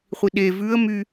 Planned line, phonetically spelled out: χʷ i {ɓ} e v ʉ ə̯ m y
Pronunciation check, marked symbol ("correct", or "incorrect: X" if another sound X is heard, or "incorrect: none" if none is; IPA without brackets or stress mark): incorrect: ɗ